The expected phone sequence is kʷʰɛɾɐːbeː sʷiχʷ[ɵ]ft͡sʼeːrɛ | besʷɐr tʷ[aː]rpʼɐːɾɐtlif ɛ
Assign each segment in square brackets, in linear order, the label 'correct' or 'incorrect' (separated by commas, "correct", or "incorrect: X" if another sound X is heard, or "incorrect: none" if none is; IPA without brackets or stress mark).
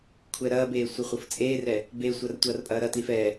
incorrect: ɤ, incorrect: ɐː